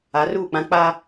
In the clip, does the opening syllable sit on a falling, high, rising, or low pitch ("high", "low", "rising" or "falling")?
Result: rising